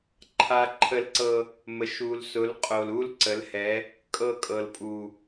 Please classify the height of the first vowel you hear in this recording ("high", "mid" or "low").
low